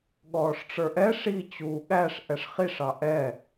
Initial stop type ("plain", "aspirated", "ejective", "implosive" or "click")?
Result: implosive